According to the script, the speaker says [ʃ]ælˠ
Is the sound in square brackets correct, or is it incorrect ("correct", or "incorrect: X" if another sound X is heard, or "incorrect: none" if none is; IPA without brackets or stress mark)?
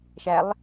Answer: correct